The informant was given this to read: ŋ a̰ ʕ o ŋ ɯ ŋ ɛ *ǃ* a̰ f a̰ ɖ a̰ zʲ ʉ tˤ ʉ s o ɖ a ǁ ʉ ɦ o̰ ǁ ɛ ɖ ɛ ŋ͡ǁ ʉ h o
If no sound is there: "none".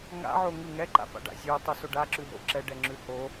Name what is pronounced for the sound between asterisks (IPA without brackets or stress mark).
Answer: ǃ